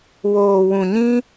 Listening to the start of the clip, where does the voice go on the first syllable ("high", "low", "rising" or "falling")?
low